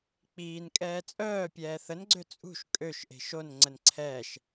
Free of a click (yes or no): no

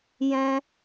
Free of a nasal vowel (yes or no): no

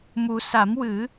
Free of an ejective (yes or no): yes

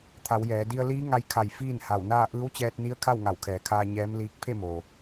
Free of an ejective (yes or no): yes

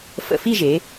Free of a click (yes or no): yes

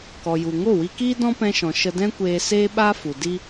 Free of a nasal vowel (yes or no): no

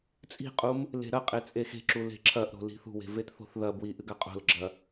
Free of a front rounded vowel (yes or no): yes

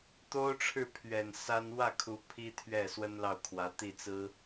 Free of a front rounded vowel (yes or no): yes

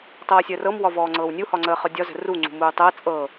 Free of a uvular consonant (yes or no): no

